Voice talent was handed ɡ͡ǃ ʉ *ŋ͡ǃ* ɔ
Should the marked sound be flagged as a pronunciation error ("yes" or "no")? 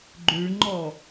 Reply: no